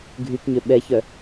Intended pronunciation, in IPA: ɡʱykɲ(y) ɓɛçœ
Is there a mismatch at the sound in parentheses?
yes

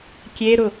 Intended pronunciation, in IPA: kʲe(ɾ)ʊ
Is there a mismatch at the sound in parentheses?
no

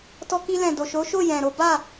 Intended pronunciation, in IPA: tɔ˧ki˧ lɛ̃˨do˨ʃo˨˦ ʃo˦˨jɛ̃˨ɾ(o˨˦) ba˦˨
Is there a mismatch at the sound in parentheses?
no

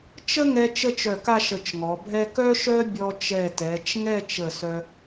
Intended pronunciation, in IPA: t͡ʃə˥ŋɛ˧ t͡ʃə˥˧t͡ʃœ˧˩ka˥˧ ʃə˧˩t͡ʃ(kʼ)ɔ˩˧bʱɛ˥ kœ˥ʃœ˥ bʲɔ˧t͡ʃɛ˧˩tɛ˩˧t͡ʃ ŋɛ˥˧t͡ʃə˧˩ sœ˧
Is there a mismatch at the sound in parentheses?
yes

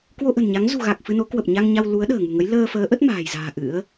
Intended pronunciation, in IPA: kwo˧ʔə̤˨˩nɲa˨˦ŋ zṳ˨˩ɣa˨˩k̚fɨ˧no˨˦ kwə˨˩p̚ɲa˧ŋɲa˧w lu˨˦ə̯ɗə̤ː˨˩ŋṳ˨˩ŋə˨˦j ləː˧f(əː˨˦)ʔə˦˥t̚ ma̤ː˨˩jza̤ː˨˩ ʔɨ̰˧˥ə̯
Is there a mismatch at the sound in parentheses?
no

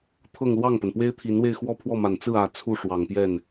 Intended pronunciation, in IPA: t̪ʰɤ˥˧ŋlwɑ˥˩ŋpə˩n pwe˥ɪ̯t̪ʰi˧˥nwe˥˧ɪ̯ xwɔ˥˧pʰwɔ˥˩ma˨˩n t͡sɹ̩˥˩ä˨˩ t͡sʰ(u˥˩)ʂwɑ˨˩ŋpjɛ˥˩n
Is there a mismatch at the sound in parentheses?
no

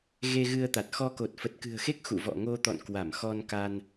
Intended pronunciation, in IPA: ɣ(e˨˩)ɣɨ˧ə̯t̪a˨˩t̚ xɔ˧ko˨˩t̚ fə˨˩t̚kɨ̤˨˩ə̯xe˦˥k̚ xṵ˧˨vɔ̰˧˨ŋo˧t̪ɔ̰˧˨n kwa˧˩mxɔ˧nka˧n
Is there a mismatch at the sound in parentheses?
yes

